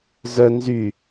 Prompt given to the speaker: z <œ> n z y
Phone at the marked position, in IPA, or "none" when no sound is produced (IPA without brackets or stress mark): œ